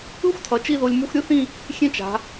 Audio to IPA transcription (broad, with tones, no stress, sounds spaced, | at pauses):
ɯ˥ xʷ tʰ ʌ˩˧ t͡ʃ i˥˧ ð o˧ lʲ m u˧ xʷ ɾʲ ɯ˥ θ ĩ˥˧ | xʲ ẽ˥ t͡ʃ a̤˩˧